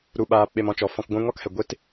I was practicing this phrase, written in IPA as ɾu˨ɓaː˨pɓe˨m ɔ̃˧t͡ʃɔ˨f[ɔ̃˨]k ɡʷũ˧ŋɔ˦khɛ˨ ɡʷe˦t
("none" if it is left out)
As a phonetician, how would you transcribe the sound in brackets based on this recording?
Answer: ɔ̃˧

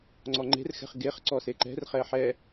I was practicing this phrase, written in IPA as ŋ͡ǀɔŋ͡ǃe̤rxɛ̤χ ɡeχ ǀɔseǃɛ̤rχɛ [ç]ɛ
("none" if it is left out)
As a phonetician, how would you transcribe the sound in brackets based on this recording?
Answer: ħ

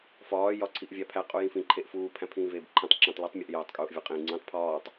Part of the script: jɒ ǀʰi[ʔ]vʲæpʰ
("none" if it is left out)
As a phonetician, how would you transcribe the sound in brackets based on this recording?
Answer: ʔ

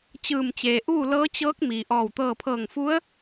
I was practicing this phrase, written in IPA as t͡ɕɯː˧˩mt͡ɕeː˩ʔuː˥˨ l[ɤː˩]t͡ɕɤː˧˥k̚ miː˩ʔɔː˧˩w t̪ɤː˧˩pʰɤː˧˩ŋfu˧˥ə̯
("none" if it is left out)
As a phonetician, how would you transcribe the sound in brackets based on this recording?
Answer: ɤː˧˥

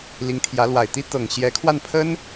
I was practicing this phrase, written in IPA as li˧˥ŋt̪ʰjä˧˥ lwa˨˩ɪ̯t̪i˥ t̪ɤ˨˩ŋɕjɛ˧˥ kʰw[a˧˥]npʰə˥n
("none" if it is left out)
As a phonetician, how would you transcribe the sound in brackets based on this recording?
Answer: a˥˩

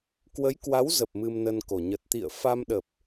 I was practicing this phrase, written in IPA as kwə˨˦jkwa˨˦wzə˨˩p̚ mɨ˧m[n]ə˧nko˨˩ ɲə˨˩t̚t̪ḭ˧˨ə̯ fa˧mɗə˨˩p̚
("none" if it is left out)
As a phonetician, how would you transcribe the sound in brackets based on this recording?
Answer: n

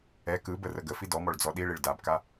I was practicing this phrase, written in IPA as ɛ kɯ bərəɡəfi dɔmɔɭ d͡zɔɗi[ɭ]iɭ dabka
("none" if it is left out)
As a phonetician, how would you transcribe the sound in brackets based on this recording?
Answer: ɭ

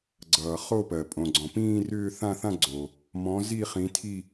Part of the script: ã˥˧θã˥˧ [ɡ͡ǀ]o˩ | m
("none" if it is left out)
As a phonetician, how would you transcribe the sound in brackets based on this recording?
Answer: ɡ͡ǀ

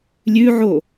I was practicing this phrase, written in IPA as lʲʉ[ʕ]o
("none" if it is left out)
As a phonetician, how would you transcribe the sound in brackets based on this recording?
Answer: ʕ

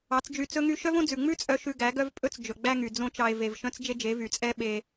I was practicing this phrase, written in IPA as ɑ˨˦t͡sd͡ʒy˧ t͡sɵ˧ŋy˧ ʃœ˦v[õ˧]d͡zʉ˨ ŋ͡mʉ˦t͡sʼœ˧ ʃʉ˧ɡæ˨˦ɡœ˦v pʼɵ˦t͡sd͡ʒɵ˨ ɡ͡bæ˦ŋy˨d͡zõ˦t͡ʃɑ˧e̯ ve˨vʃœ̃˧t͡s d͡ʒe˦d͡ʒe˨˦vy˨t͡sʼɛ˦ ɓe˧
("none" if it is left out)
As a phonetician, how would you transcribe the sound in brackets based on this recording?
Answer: õ˦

